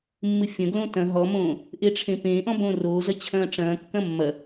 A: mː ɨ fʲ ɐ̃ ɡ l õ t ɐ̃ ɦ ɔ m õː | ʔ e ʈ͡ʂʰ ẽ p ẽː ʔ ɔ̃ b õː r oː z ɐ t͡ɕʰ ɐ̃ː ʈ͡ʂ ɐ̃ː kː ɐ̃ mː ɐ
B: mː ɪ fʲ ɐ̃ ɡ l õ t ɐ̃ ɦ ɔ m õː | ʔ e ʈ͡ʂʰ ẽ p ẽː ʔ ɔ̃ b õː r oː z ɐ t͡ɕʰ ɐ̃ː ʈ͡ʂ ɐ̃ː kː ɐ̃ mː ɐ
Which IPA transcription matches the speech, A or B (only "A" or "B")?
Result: A